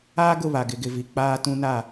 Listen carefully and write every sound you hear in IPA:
aː˦ ɡ ʊ˦˨ β a˨ ɡ ɪ˨ ɡ ɪ˨ v i˨ k͡p aː˦ t ũ˦ n a˦˨

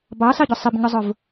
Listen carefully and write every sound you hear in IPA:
b ɑ s ɑ ɟ ʊ sˤ ɪ b ɲ ʊ zˤ ʊ v

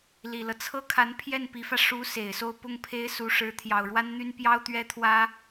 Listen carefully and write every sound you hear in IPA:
l i˨˩ l ɤ˦ t͡sʰ ɤ˥ kʰ a˧˥ n pʰ j ɛ˥˩ n p i˧˥ f ä˧ ʂ u˧˥ s e˨˩ ɪ̯ s o˥˧ ʊ̯ p ʊ˥˩ ŋ pʰ e˥ ɪ̯ s u˧˥ ʂ ɻ̩˧˥ t̪ʰ j ɑ˨˩ ʊ̯ ɻ w a˥ n n̪ y˥ n p j ɑ˥ ʊ̯ t̪ ɥ ɛ˥ t̪ʰ w ä˥

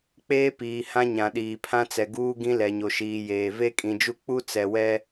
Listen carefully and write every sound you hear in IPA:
k͡p eː˦ p iː˨ h ã˦ ɲ ã˨ ɗ iː˨ pʰ ã˦ t͡s ɛ˨ ɡ uː˦ ɡ ĩ˦ l ɛ˨ ɲ o˨ ʃ iː˨ j eː˨ v e˦ kʼ ĩ˨ d͡ʒ u˦ k͡p u˦ t͡s ɛ˨ w ɛ˦

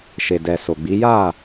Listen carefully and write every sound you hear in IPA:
ʃ e˨ d ɛ˨ s o˨ ɡ͡b i˨˦ j a˦˨

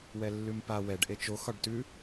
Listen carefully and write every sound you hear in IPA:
w ɛ lː ʉ m p a w ɛ ɖ ʔ e t͡ʃ o x ɒ ɖ t ʉ

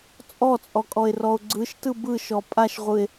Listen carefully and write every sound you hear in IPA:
t͡sʼ ɔ t͡sʼ ɔ kʼ ɔ e̯ r ɔ o̯ ɡ͡ǀ ɯ ʃ t ɯ b ɯ ʃ ɔ pʼ a ʃ ʁʷ ɯ e̯

